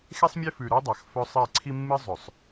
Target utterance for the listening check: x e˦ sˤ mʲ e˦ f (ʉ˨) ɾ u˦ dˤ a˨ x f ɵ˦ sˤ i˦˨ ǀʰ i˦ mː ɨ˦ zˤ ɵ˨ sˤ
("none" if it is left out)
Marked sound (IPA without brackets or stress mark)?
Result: ʉ˨